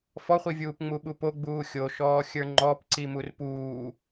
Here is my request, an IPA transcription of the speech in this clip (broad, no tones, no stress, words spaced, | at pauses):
fɔχʷi vʲuːpŋ͡muɓupo ɡ͡buːxʲoʃɔː xʲə˞ŋ͡ǃɔp ǀimurpuː